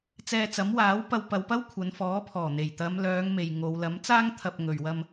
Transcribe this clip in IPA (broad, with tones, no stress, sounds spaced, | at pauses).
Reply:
t͡s ɛː˧ t͡s ɐ˨˥ m w aː˨˥ w p ɐ˧ w p ɐ˨˧ w p ɐ˥ w kʷʰ ɐ˨˧ n f ɔː˨˥ pʰ ɔː˨˩ n̪ e˨˩ j t̪ ɐ˨˧ m l œː˨˧ ŋ m e˨ j ŋ o˨˧ w l ɐ˨˥ m t͡s aː˥ ŋ t̪ʰ ɐ˨ p̚ ŋ ɵ˨ ɥ w ɐ˧ m